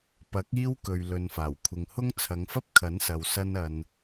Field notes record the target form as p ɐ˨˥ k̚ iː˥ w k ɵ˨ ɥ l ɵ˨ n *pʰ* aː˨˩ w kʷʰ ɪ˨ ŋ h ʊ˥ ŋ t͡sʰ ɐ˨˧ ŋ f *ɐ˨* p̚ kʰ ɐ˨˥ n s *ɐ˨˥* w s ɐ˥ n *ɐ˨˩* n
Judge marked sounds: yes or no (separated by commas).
no, no, no, no